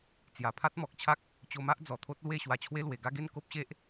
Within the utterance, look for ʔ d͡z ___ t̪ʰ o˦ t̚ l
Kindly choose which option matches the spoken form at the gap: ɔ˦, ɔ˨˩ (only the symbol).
ɔ˨˩